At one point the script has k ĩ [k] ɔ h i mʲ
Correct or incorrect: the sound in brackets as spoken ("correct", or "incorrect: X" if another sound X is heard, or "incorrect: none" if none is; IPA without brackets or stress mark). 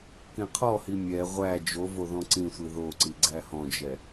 incorrect: qʰ